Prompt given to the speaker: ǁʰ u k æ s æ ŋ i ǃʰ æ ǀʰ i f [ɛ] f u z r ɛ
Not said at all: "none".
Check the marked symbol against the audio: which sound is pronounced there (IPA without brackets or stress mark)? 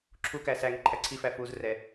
æ